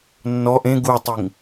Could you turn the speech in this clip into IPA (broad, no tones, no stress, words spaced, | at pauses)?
nːɔʔ ẽ ɡutˤiŋ